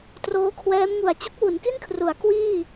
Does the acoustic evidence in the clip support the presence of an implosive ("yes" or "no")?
no